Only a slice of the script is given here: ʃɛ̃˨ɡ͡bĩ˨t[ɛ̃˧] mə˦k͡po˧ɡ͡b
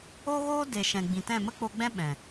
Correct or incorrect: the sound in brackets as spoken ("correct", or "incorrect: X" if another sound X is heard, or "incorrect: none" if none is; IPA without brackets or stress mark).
incorrect: ɛ̃˦˨